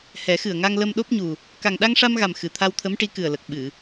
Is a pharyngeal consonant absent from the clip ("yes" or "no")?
yes